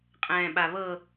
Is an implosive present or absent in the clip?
present